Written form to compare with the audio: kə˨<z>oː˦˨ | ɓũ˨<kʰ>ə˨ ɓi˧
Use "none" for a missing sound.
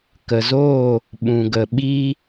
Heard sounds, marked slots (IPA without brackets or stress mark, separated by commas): z, ɡ